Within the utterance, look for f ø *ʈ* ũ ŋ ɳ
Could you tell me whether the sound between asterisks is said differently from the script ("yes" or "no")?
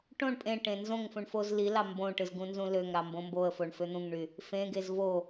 yes